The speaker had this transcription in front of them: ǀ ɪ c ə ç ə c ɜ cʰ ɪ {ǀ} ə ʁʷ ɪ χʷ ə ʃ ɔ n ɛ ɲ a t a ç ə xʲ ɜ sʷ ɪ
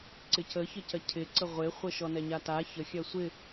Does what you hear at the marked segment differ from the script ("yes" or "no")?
no